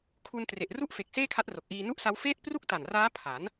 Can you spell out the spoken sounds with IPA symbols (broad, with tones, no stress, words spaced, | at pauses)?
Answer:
kʰu˧n tre˨˩ʔru˥˩ʔfe˨˩k̚ seː˥˩kʰa˦˥t̚ro˨˩k̚ʔiː˧ nu˥˩ʔsa˦˥w feː˥˩t̚ pru˥˩k̚ta˨˩nraː˦˥ pʰa˩˦n